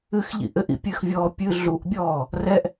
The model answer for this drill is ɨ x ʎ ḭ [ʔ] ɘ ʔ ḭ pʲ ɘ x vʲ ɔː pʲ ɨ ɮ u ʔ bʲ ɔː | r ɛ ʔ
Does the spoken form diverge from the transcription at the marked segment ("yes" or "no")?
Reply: no